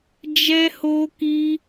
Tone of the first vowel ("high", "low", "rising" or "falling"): high